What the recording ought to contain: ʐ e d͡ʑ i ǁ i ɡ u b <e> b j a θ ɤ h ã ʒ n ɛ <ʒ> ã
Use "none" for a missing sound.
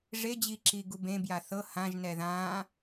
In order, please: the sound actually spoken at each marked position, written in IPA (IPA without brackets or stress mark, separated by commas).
ẽ, ð